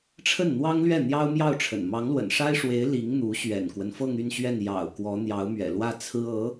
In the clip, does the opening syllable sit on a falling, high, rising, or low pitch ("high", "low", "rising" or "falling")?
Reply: falling